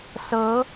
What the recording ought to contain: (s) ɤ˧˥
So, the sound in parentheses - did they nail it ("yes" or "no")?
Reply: yes